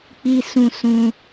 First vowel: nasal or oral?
oral